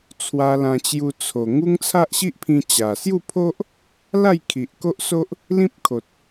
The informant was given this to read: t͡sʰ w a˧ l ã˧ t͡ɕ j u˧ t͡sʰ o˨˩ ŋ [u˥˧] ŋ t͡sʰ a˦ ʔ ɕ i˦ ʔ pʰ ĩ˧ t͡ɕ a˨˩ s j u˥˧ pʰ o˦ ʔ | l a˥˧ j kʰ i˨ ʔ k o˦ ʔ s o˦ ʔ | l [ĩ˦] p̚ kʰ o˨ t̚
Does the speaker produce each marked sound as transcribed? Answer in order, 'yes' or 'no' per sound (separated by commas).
no, yes